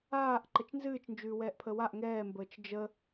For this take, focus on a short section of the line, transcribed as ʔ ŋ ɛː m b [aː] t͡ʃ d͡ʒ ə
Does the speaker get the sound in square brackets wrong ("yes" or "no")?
yes